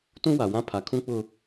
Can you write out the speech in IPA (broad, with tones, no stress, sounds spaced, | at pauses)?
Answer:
t ũ˦ w a˨ w ã˦ pʰ a˨ kʰ ũ˦ k͡p ʊ˦